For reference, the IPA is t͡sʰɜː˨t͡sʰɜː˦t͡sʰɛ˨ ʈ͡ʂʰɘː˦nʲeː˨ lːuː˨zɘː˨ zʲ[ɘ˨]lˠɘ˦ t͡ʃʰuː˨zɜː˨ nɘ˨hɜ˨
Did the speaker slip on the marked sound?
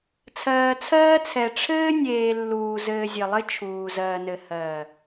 no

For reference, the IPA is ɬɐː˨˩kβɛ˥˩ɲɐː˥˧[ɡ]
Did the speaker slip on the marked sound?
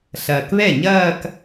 yes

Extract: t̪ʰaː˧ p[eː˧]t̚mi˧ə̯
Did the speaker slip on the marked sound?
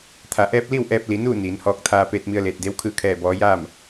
no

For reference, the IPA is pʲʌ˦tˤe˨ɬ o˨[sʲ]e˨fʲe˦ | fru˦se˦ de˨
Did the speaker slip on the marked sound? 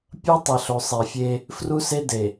yes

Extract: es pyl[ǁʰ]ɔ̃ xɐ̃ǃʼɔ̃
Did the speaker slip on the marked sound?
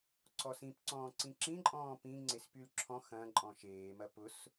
no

